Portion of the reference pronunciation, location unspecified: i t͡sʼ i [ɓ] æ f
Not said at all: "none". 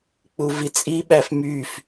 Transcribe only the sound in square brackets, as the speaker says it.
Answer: ɓ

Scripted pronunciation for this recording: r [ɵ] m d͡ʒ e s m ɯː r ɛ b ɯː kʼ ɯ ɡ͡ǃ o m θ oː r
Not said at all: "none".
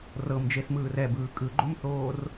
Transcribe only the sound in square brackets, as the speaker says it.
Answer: ɤ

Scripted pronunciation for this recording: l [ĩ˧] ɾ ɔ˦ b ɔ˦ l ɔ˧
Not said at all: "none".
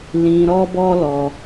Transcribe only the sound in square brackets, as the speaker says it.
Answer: ĩ˧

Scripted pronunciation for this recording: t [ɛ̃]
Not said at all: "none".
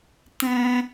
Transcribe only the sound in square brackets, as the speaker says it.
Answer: ɛ̃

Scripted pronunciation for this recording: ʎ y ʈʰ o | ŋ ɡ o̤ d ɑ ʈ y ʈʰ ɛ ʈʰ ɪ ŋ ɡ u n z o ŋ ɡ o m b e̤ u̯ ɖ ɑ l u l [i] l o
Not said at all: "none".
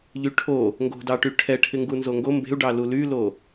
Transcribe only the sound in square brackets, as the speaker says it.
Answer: y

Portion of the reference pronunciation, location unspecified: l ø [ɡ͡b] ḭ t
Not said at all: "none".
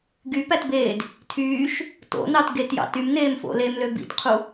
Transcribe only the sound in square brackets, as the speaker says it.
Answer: b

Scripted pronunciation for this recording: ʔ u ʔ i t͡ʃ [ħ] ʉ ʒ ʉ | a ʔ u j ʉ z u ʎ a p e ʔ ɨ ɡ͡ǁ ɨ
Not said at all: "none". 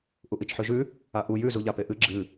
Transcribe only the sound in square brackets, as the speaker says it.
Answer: ħ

